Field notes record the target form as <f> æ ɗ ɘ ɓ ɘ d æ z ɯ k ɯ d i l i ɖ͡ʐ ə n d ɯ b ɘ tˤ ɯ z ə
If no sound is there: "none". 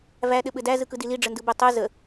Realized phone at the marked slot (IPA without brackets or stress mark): v